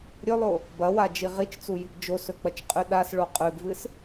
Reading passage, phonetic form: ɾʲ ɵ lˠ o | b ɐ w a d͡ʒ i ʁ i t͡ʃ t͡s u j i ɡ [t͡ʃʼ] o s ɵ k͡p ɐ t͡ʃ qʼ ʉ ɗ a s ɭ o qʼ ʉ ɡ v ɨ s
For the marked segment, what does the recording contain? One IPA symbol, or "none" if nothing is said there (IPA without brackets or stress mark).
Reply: d͡ʒ